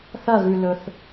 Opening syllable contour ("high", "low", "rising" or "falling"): falling